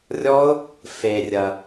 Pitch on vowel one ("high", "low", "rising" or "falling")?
high